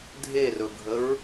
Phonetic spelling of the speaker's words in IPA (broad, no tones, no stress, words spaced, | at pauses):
dʱerɵɡʱəɹ